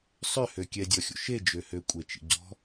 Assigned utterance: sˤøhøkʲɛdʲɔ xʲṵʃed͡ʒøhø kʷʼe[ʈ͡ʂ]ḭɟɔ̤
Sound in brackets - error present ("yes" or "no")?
yes